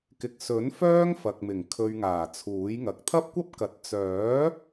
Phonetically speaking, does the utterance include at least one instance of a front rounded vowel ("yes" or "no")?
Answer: yes